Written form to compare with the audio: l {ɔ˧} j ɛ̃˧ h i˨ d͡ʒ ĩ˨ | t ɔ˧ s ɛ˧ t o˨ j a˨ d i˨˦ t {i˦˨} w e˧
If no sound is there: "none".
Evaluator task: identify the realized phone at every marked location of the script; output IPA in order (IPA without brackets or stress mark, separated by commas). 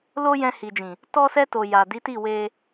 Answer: o˧, i˦˨